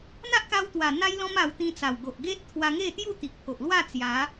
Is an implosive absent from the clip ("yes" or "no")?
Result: yes